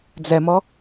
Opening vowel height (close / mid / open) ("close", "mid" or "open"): mid